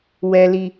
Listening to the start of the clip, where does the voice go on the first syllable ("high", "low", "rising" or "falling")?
high